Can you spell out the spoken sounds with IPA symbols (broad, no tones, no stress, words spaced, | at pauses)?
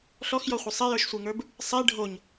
ɬɔxjɔχʷə sˤejə˞ʃsʷeŋə˞b | sˤe ɖʱoɲ